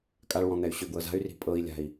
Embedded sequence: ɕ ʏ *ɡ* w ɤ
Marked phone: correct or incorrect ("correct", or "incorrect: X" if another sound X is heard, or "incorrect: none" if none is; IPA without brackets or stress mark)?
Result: correct